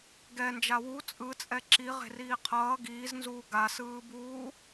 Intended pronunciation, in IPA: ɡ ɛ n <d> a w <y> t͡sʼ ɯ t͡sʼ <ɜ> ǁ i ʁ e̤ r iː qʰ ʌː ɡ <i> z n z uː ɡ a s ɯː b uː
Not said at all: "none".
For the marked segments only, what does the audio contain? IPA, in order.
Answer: d͡ʒ, u, ɛ, iː

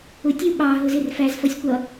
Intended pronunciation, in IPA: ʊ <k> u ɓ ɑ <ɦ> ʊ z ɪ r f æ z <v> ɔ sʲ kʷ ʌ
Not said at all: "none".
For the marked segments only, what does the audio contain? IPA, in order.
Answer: tʲ, ɦ, f

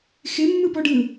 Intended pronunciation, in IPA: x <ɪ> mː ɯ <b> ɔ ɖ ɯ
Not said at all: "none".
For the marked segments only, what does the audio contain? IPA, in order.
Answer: ɪ, b

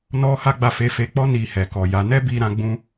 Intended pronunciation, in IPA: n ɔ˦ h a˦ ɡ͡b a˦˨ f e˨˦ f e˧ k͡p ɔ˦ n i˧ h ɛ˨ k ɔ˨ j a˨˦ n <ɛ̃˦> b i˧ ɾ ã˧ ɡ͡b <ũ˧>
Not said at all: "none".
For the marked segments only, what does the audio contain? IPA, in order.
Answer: ɛ˦, ũ˧

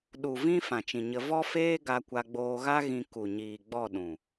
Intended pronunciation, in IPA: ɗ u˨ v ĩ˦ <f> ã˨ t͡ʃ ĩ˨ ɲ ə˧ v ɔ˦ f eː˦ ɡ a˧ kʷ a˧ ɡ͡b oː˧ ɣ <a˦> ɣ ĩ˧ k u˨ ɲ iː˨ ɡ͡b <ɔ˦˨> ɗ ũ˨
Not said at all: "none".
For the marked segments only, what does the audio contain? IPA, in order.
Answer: f, a˦, ɔ˦˨

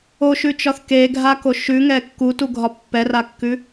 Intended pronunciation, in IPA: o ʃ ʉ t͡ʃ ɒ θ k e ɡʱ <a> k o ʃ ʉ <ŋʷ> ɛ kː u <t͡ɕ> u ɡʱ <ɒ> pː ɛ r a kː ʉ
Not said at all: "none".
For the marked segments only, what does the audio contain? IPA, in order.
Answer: a, ŋ, t, ɒ

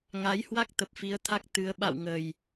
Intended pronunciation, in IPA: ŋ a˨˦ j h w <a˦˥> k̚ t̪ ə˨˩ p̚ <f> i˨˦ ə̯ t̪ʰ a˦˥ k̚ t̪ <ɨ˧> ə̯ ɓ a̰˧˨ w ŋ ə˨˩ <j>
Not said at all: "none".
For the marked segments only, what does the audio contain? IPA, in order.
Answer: a˦˥, f, ɨ˨˦, j

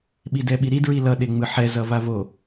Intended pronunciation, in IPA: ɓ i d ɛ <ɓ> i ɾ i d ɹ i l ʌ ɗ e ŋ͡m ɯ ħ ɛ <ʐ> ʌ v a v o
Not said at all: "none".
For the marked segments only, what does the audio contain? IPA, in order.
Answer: ɓ, z

